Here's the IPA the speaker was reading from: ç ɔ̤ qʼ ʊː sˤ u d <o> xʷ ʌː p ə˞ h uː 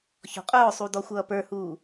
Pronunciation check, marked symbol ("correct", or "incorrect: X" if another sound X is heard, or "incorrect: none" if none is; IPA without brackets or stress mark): incorrect: ɔ